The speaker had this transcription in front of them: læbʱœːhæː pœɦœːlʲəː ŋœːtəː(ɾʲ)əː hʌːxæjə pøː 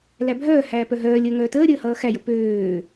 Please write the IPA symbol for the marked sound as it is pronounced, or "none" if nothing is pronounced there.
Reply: ɾʲ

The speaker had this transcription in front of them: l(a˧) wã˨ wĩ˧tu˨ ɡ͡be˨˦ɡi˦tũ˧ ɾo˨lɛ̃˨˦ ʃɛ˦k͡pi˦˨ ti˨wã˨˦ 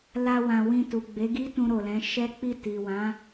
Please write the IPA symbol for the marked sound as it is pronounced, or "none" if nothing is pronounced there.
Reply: a˧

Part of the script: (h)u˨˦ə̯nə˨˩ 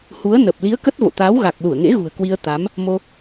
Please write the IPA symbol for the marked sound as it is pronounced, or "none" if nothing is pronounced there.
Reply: h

